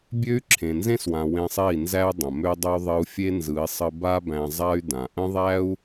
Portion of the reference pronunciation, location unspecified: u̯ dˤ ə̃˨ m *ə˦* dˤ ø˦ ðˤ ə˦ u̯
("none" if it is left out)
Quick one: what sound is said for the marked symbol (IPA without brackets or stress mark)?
ø˦